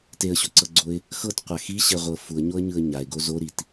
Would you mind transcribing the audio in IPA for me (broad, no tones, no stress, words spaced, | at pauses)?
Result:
teə̯ɕoǀɤɡ͡ǀoɪ̯ | xɤt qʷaxiɕɛʁʷɤ fuə̯ɲoə̯ ɲɯə̯ɲaɪ̯ɡo zoɾit